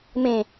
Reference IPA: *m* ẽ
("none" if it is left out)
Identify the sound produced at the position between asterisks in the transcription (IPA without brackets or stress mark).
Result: m